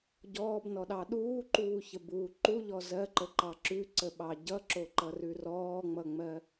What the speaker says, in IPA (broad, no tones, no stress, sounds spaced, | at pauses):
ɟ ɔː b n ɔ ɗ ɑ ɗ uː ǃ uː ç ə b uː ǃ u ʎ ɔ z ɜ ǃ ə ǃ ɑ ǁ ʉ ǀ ə ɓ ɑ ɟ ʌ ǁ o ǃ ʌ r ʉ r ɔː ŋ͡m ʌ ŋ͡m ɜ